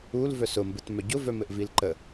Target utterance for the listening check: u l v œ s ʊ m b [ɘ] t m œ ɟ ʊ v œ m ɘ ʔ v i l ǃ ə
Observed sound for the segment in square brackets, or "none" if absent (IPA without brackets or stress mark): ɘ